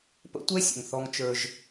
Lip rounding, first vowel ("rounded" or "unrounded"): unrounded